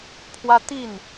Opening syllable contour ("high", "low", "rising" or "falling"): high